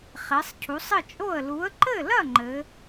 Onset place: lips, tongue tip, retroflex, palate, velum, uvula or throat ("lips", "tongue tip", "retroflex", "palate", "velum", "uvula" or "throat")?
uvula